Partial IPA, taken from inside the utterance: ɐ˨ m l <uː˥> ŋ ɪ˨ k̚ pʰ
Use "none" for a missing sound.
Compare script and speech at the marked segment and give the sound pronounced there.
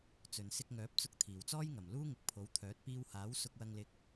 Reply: uː˥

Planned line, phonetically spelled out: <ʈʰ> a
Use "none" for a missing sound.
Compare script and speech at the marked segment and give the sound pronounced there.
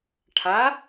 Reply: ʈʰ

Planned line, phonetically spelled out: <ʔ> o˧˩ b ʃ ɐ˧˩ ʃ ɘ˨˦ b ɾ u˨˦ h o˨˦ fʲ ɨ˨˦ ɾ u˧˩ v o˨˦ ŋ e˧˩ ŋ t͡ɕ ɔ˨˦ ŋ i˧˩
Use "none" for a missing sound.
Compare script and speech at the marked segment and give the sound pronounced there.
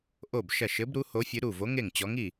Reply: ʔ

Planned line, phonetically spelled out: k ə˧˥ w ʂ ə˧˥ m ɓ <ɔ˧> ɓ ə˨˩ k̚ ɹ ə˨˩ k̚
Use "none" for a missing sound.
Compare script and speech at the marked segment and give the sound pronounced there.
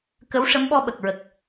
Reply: ɔ˧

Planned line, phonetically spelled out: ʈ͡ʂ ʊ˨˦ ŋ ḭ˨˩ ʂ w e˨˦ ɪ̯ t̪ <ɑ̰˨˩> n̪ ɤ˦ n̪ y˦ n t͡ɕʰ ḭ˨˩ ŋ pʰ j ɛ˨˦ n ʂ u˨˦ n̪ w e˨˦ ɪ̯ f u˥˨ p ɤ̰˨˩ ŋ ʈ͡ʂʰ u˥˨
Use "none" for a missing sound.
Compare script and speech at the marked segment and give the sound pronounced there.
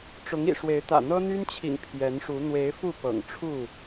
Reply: ä̰˨˩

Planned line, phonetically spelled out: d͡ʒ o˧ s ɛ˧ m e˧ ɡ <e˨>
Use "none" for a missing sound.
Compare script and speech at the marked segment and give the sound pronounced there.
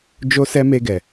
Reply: ɛ˨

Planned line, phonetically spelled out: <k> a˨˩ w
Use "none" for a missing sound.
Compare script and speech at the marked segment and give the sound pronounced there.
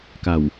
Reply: k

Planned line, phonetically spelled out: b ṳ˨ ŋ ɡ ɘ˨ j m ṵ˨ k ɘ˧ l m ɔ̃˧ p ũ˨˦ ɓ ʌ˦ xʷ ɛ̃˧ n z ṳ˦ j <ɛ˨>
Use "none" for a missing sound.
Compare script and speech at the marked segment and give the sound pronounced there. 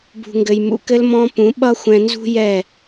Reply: ɛ˦˨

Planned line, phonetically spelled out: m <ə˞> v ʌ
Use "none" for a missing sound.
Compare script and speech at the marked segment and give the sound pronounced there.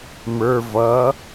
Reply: ə˞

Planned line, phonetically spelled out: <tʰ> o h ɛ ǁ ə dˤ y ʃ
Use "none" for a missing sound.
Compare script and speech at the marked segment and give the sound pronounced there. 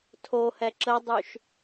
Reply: tʰ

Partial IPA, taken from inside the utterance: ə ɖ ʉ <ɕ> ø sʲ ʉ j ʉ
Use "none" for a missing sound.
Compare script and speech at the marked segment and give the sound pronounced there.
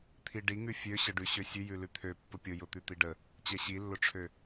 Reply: ɕ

